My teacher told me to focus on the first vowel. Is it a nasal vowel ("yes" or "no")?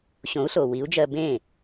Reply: yes